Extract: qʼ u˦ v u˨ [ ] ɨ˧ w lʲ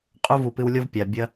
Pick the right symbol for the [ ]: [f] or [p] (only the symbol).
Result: p